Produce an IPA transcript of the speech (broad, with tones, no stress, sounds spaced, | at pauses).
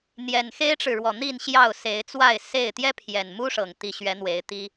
n̪ j ɛ˨˩ n x e˦ ɪ̯ ʈ͡ʂ ɻ̩˨ ɻ w ɔ˨˩ n̪ i˥˨ n ɕ j ɑ˥˨ ʊ̯ s e˨˦ ɪ̯ t͡s w a˥˨ ɪ̯ s e˥˨ ɪ̯ t̪ j ɛ˦ pʰ j ɛ˨˩ n m u˦ ʂ ɤ˨˩ ŋ t̪ i˨˦ ɕ ɥ ɛ˨˦ n̪ w e˨˦ ɪ̯ t̪ i˦